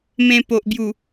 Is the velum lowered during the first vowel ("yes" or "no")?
yes